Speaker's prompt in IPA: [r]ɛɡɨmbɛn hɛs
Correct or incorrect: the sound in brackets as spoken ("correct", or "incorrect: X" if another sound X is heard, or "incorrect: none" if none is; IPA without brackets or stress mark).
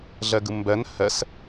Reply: incorrect: ɮ